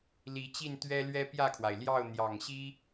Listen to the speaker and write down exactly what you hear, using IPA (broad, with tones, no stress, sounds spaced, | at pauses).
l i˨˦ t͡ɕ i˥˨ n t̪ ɥ ɛ˦ l ɥ ɛ˦ p j ä˥˨ kʰ w a˩ ɪ̯ l j ɑ˥˨ ʊ̯ n̪ j ɑ˨˩ ŋ ɕ i˦